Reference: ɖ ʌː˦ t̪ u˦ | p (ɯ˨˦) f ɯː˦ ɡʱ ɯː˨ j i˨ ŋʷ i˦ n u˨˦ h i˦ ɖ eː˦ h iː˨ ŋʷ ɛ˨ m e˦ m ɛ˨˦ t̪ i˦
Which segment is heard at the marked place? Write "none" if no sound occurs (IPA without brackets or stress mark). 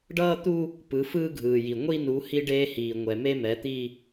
ɯ˨˦